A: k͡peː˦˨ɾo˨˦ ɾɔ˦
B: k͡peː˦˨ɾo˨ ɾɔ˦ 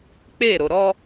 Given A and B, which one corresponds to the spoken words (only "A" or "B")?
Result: B